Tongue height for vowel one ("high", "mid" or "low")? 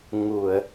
high